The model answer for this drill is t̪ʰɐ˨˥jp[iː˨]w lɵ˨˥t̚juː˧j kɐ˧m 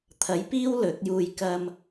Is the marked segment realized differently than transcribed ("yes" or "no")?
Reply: yes